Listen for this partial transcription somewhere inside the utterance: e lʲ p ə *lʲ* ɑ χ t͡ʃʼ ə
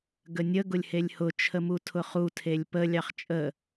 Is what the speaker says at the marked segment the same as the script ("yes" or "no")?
yes